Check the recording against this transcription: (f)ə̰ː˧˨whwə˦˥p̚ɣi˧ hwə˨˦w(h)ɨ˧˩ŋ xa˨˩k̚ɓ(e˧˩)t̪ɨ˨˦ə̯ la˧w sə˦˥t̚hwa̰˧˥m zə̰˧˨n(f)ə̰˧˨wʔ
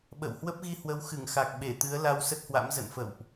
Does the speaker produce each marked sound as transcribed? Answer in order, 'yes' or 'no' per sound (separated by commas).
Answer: no, no, yes, yes